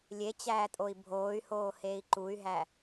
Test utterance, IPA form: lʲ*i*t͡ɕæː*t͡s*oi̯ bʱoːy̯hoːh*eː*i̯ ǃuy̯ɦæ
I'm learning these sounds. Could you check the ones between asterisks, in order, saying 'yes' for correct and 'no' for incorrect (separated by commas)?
no, no, yes